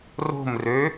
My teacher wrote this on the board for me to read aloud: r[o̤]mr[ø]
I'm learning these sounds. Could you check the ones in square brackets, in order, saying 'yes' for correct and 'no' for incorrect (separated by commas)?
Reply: yes, yes